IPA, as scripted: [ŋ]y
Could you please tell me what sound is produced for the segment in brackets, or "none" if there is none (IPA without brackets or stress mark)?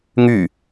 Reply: ŋ